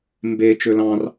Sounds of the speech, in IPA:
m b e t͡ʃ ø l ɑ̃ r

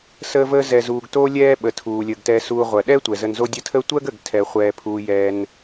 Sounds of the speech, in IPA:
s əː˦ v əː˦ z ɛ˨ z uː˨ ɡ t oː˦ lʲ ɛː˥ ɓ ə˨ tʰ uː˩ lʲ əː˩ ɡ t ɛ˨ s uː˨ ʁʷ ɜ˩ ɗ ɛː˥ tʷ ɛ˩ z ə˨ n z o˦ dʲ ə˦ tʰ əː˥ tʷ ɜ˥ ɡ ə˩ ɡ tʰ ɛ˩ χʷ ɛː˩ pʰ uː˩ j ɛː˩ n

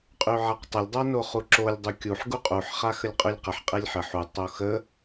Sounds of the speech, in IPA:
qʼ y ʕ a q tˤ ə lʲ dˤ a n o χ u ǁ o lʲ dˤ u kʲ u ħ ɡ u qʼ u ħ χ a x ə lʲ qʼ y lʲ q ə ħ qʼ e lʲ ħ ə ħ u tˤ o x ə

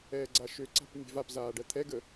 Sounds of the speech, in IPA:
ɛː ɡ͡ǀ a ʃ ø ǀ a̤ p mʲ ɛ̤ v a p z aː ɖ ɜ t̪ʰ ɛ ɡ ə

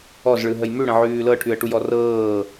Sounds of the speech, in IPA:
ɔ z ɭ ɯ ɦ ə j m ʉ ɽ ə̃ ʕ ʉː l ɤ ʈʰ ʉ ə̯ ʈ u j ɔ r ɤː

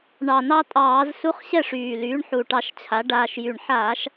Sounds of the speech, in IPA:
ɳ ɑ˨˩ n ɑ˧ tʼ ɑː˧˩˧ z s u˧˥˧ χ ɕ ɛ˥˨ ʂ yː˨˩ l yː˩˥ ɳ ħ u˨˩ ʈ ɑ˧ ʃ t͡ɕʰ a˩˥ ɖ aː˧ ʃ j y˨˩ ɳ ħ aː˧˩˧ ʃ

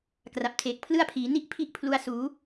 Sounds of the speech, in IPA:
k r a˨˩ p̚ tʰ eː˨˩ k̚ pʰ l ɯ˥˩ a̯ pʰ iː˩˦ n i˥˩ ʔ pʰ i˥˩ ʔ pʰ l u˧ a̯ s uː˩˦

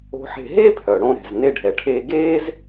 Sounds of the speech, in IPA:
o̤˧ ħ e̤˧ ɦ e˥ pʰ œ˩ ɽ õ˧ ɾ ɛ̤˩ z n e˧ ɖʱ ɛ˩ ʈʰ eː˧ ɡ eː˥ z

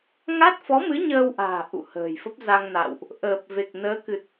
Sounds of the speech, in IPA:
ŋ a˦˥ t̚ f ɔ˨˦ m ɨ˨˦ ɲ əː˧ w ʔ a̤ː˨˩ ʔ ṵ˧˨ h ə̤ː˨˩ j f ə˦˥ p̚ z a˧ ŋ n a̰˧˨ w ʔ | ʔ əː˨˩ p̚ v e˨˩ k̚ n əː˨˦ k ɨ˨˩ t̚

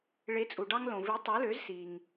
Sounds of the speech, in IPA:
ɭ e˩˥ t͡sʼ u˩ ɖ ɑ˧ ŋ l õ˩ v i˩˥ tˤ o˩˥ l ø˩˥ z s i˩ ŋ

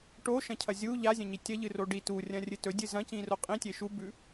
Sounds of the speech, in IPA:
ʈ o ʃ ɐ̃ cʰ ɐ zʲ u ʎ a zʲ ɐ̃ ɲ i tʲ ɐ ʎ ɨ r o ɖ i t u rʲ ɐ̃ rʲ ɨ t ɵ dʲ ɨ z ɐ̃ c ĩ r o qʼ ĩ tʲ e ʃ u b ʉ

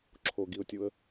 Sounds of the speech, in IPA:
ǁʰ o ɡ i ʊ̯ tʲ u ə̯

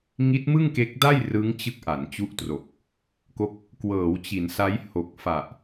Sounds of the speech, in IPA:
ŋ i˦˥ t̚ m ɯ˥˩ ŋ k e˦˥ k̚ d a˥˩ j r ɯ˦˥ ŋ t͡ɕ ɯ˦˥ k̚ ʔ a˩˦ n t͡ɕ u˦˥ ʔ t r o˨˩ k̚ | k o˦˥ k̚ | k w ɤː˩˦ w t͡ɕ i˩˦ n s a˦˥ j h o˨˩ k̚ f a˨˩ ʔ

